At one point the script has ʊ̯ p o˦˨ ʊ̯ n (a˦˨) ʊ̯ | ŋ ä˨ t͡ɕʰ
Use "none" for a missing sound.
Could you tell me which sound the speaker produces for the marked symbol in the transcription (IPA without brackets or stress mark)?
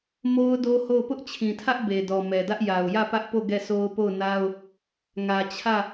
a˦